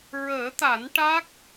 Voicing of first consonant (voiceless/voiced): voiced